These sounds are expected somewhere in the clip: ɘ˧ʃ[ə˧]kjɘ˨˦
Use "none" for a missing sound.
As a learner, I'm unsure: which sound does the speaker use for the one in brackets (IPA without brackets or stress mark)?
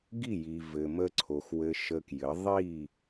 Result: ə˧